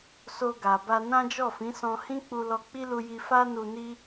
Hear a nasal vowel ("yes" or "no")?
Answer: yes